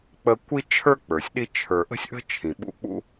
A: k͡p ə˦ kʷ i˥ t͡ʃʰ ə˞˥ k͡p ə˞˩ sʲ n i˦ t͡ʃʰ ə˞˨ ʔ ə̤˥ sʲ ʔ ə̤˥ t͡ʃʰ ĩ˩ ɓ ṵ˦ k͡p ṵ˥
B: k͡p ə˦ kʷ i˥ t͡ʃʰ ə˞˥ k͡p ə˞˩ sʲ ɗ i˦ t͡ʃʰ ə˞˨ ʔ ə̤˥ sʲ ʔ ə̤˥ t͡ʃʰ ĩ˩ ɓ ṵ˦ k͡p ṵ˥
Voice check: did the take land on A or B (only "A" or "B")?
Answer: B